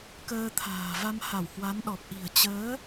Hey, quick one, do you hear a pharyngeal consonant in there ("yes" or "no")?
no